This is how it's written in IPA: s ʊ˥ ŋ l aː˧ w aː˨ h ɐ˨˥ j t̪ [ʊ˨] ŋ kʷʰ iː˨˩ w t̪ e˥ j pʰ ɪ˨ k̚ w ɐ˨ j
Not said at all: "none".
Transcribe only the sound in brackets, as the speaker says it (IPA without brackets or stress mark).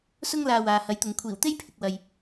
ʊ˨